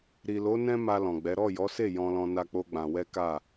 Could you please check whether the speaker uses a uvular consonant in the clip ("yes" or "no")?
no